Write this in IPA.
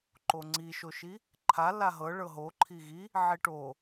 ǃ o ŋ͡ǀ i ʃ o ʃ i | ǃʰ a l a ɦ ɤ ɭ ɤ ɦ o ǃʰ i ɣ i | ʕ i ʈ o

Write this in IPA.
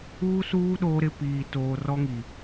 uː˦ s uː˦ ɗ oː˦ ɾ ɪ˦ p iː˨ t oː˨ r ɔ˦ ŋ i˨

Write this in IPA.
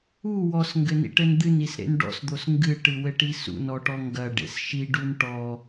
u w ɔ s ŋ ɡ ɘ n ḭ ʈ ɘ n d̪ ɨ n i s ɾ ḛ n ɖ ɔ̰ s d̪ o s ŋ ɡ ɨ ʈ ɨ w ɘ ʈ i s ṵ n ɔ ʈ ɔ ŋ ɡ ɐ ɖ ḛ s ʃ i ɖ u n ʈ ɔ

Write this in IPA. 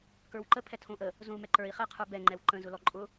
k ə˞ w ǃ ə pʰ ɛ tʰ õ ʔ ə | z õ u̯ m ɛ ǃ ə˞ i̯ χ ɛ qʰ ə˞ b ɛ ŋ͡ǃ ɛ w ǃ ə̃ z ʊ l ɔ ǃʼ ʊ

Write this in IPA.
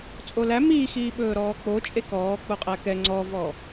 t͡sʼ o l æ m iː x iː ɓ ɵː ɾ ɔː k͡p o t͡ʃʼ e k ɔː k͡p o qʼ æ k ɛ ŋ͡ǀ ɔ v ɔ

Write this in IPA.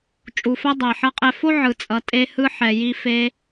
t͡ʃʼ u˨ f ɛ˦ dˤ ɛ˨ ħ ʌ˧ qʼ ɛ˧ f o˦ ʕ ɯ˨ t͡sʼ ʌ˨ tʼ e˧ h ɯ˧ ħ ɛ˨ j i˧ f e˧

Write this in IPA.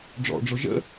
ɖ͡ʐ ɔ̰ ɖ͡ʐ ʊ ʒ ə̰

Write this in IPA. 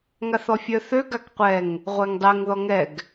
ŋ a θ ɔ fʲ œ θ ø ɡ a k qʷ ɛ ŋ | ʁʷ ɛ ŋ dˤ ɛ ŋ ð ɔ ŋ ɛ ɡ

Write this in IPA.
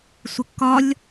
sʷ ɪ kː ɒ lʲ

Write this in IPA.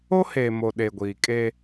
o˦ h eː˨ m o˨ ɗ e˨ ɡʷ iː˨ kʼ eː˦

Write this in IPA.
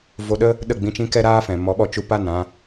v o˧ ɗ ə˦ | ɗ ə˦˨ ɡ͡b ĩ˧ t͡ʃ ĩ˦ k ɛ˦ ɾ aː˦ f ɛ̃˨ m ɔ˨˦ ɓ ɔ˧ t͡ʃ u˧ p a˦˨ n ã˦

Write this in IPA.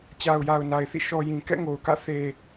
t͡ɕ a˨ ʊ̯ j a˨ ʊ̯ n a˨ ɪ̯ θ ḭ˦˨ ʃ ɔ˨ j ĩ˨ k ɛ̰˦˨ ŋ o˨ ʊ̯ k ä̰˦˨ θ e˨

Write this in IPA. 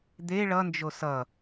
d̪ e ɭ ʌ n d͡ʒ o s ʌ

